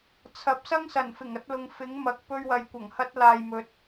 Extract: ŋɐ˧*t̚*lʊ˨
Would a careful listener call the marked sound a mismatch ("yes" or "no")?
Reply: no